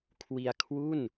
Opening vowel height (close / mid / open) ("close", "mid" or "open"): close